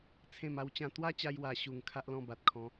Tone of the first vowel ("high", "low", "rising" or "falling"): falling